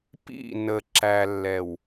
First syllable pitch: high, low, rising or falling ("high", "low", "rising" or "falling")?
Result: falling